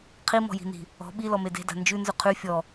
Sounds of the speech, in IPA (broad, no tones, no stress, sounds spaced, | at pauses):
qʰ i m ɔ̤ j i̤ n i̤ | ɔ̤ ɓ i l ɔ m e d e̤ d a̤ n d͡ʒ ʉ n z ʉ qʰ ʉ fʲ ɔ